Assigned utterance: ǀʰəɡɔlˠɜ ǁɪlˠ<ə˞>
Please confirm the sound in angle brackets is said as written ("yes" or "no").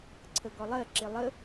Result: no